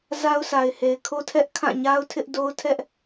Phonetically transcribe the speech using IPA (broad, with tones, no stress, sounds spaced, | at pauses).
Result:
z a˦ ʊ̯ sʰ a˨ ɪ̯ h e˨ ɪ̯ kʰ o˦ tʰ ɛ˦ ʔ kʰ ã˦˨ ɲ a˦ ʊ̯ tʰ ɪ˦ ʔ d o˦ ʊ̯ tʰ ɛ˦ ʔ